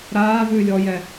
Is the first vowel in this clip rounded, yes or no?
no